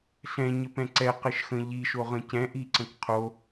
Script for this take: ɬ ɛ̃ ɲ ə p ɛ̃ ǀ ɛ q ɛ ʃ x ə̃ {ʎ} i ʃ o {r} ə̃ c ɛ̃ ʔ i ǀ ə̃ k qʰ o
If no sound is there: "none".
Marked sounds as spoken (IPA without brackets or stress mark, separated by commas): ʎ, ʁ